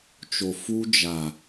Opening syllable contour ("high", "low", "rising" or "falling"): low